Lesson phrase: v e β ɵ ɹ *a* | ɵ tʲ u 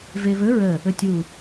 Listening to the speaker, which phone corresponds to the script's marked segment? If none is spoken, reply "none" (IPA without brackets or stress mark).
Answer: ə